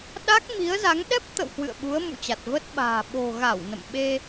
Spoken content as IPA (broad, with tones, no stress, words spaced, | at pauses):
ɗa˦˥k̚ mi˨˦ə̯za˨˦ŋ ɗɛ˦˥p̚t̪ə̰˧˨w hwɨ̰˧˨ə̯ ɓu˨˦ə̯ mṵ˧˨t͡ɕa˨˩t̚ və˦˥t̚ɓa̤ː˨˩ ɓo̤˨˩ɣa˧˩w nə̰˧˨mɓe˧